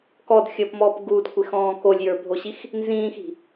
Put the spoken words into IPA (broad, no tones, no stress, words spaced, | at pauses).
kɔdxʲəːpmɔːp ɡudkʷexɔ̃ː kolʲjə˞bʱoɕix | nzĩːxi̤